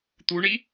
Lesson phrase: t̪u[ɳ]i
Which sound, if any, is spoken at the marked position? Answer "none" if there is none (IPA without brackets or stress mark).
ɳ